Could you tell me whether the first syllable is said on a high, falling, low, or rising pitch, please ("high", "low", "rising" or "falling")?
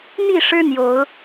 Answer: falling